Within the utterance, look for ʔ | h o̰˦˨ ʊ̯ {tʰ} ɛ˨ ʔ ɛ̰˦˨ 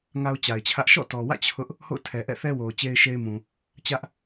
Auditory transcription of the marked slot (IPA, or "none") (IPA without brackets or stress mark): tʰ